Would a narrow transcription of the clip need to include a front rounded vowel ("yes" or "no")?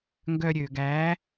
yes